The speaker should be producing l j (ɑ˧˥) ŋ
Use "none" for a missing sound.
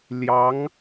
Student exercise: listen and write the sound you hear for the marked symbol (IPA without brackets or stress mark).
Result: ɑ˧˥